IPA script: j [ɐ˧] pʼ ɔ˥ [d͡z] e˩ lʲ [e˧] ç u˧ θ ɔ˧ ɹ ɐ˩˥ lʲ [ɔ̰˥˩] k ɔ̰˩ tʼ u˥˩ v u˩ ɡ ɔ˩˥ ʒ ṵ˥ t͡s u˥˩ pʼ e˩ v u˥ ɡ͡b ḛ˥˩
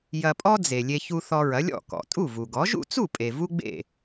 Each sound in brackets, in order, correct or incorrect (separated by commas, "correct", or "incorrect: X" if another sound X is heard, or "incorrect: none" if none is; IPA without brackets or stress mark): correct, correct, correct, correct